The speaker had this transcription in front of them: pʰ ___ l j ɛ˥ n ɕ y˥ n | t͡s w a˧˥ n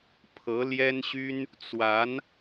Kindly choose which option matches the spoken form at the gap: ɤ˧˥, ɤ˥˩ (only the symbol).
ɤ˧˥